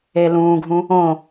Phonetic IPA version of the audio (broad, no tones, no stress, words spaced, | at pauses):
elũːɡʱũ | õ